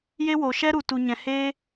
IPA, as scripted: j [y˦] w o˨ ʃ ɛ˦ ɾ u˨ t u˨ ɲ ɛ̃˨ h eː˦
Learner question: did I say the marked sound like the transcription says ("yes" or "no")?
no